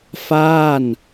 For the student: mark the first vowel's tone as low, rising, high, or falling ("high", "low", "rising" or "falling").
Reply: falling